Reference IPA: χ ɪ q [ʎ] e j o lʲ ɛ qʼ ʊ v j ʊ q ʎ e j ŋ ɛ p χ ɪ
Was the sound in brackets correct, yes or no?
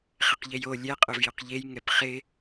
yes